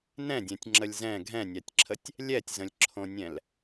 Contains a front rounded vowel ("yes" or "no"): no